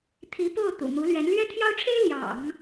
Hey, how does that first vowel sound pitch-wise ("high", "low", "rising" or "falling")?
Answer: rising